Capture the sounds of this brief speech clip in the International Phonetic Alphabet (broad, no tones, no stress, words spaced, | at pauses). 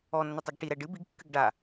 ɔnːɘtˤoɡ ʈiɾɛ ɖɨ biɡkːɨɡ ɖa